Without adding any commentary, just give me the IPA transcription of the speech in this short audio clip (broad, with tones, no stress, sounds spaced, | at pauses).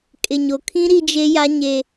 kʼ ɪ˨ ɲ o˨ kʰ ĩ˦ ɾ i˦ d͡ʒ e˦ j a˦ ɲ e˦